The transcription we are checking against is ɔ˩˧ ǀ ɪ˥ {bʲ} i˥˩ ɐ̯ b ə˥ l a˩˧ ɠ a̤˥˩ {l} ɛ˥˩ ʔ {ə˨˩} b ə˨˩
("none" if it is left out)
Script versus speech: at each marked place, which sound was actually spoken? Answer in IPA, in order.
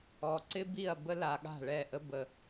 b, ɭ, ə˥

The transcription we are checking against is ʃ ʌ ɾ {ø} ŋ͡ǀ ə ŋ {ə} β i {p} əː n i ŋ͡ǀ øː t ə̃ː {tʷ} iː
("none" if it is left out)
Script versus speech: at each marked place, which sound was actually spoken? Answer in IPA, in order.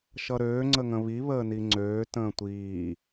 øː, ə̃, β, tʷ

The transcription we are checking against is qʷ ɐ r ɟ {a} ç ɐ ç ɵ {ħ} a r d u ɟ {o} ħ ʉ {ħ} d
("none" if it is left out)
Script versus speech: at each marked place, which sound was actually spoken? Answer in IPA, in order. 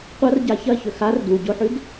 a, x, o, none

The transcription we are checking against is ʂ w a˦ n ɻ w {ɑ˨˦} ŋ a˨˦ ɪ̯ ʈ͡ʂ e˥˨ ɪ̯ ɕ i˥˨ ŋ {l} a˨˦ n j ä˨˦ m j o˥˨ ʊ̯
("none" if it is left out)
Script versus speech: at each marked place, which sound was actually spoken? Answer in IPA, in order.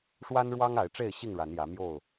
ɑ˦, ɻ

